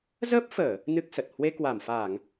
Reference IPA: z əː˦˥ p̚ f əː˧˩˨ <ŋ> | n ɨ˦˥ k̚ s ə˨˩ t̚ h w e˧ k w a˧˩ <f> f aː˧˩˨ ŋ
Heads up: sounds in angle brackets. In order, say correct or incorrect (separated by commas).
incorrect, incorrect